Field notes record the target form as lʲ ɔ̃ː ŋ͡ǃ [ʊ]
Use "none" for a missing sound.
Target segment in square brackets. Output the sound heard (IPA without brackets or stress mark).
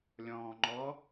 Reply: ɔ